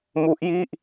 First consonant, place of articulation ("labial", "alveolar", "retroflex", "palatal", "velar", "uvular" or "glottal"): labial